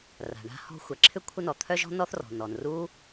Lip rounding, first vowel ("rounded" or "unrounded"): unrounded